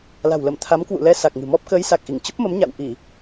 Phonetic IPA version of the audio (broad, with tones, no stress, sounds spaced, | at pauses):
l a̤˨˩ w l ə˧˩ m t̪ʰ a˨˦ m k w ṵ˧˨ l ɛ˧ s a˨˩ k̚ ŋ ɨ̤˨˩ m ɔ˦˥ p̚ k əː˨˦ j s a˨˩ k̚ ʔ i˧˩ ŋ t͡ɕ ə˦˥ p̚ m ə˨˦ m ɲ a̰˧˨ w ʔ i˧˩˨